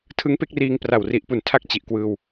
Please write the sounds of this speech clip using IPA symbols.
tʰ ɯ˦˥ ŋ p e˦˥ k̚ r iː˧ ŋ p r a˨˩ w r i˨˩ ʔ p u˨˩ n tʰ a˥˩ k̚ t͡ɕ i˨˩ ʔ k w ɯː˧ w

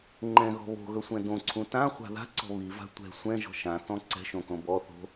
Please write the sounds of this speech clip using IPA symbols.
ŋ͡ǃ ɛ̃ ɣ ɔ̤ β o̤ ɣ ɵ sʷ ɛ̃ d õ ǀʰ ũ t ã χʷ a̤ ð a̤ ǀ ɔ̤ β i v a̤ tʷ ɛ̤ sʷ ɛ̃ ʒ ɔ̤ ʃ ã θ ɔ̃ ǀ ɛ̤ ʃ õ k õ b ɔ θ o̤

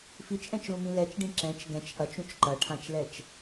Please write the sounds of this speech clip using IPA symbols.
f i t͡ʃ ʔ ɛ̃ t͡ʃ l ũ m ĩ l ɛ t͡ʃ ɖ ĩ ǁ ɛ̃ t͡ʃ ɡ ɛ̃ t͡ʃ ʔ ɐ t͡ʃ ũ t͡ʃ ǃ ɐ ʈʰ ã t͡ʃ l ɛ t͡ʃ

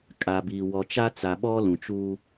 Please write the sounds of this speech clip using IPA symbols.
kʼ a˨ b iː˨ w ɔ˨ t͡ʃ a˦ t͡s a˨ ɓ ɔ˦ l ũ˨ t͡ʃ uː˦

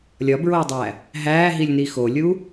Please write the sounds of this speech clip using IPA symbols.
lʲ ɒ b ɹ oː dˤ æː | ɦ æː ɦ i lʲ n i x o lʲ uː

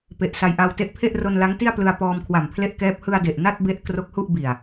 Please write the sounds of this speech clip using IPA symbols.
p e˨˩ ʔ s a˧ j ʔ a˧ w t e˦˥ ʔ pʰ e˥˩ ʔ r o˧ n l a˦˥ ŋ t i˥˩ a̯ p l ɯ˧ a̯ p ɔː˧ m kʰ w a˨˩ m pʰ l e˥˩ ʔ k ɛː˦˥ p̚ h ɯ˧ a̯ d e˨˩ ʔ n a˥˩ t̚ b e˦˥ ʔ k r o˦˥ k̚ h u˥˩ ʔ b i˨˩ a̯

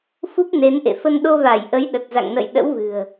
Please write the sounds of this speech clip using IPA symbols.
f u˦˥ p̚ n e˨˦ n ʔ ḛ˧˨ f ə˧ n ɗ o˧ v a˧˩ j ʔ ə˨˦ j ɗ ə˨˩ t̚ z a̰˧˨ ŋ n ə̰˧˨ j ɗ ə̰˧˥ w v ɨ̤˨˩ ə̯

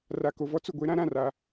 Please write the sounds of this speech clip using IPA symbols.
r a˨ k o˨ v ɔ˦ t͡s ʊ˨ ɡʷ e˦ ɾ ã˦ ɾ ã˦˨ r a˦

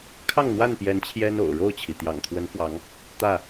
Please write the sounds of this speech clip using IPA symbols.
kʰ ɑ˥˨ ŋ n̪ w a˥˨ n p j ɛ˨˦ n t͡ɕʰ j ɛ˦ n o̰˨˩ ʊ̯ ɻ o˥˨ ʊ̯ t͡ɕʰ i˩ t̪ j ɑ̰˨˩ ŋ t̪ʰ w ə˨˦ n f w ɑ˨˦ ŋ | t̪ ä˥˨

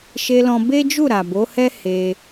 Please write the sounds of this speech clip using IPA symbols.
ʃ e˧ l ɔ̃˧ b e˦ d͡ʒ u˦˨ ɾ a˨ b o˨˦ h ɛ˦ h e˧

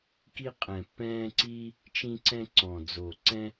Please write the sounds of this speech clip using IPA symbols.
k i˦ qʼ ɛ̃˨˩ pː ɛ̃ː˦ ǀ iː˦ | t͡ʃ ĩ˦ ǀ ɛ̃˦ ǀ ɔ̃˨˩ d͡z o˨˩ ǀ ɛ̃˦

